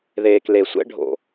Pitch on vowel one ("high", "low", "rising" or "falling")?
low